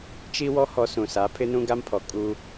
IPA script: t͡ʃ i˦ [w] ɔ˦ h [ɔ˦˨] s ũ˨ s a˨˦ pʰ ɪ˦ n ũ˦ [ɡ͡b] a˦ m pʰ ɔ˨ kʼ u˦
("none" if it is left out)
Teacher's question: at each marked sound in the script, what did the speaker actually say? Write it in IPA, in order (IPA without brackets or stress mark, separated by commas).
w, ɔ˨, ɡ